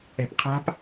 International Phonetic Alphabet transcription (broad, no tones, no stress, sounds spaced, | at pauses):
ɛ̤ p qʰ a̤ p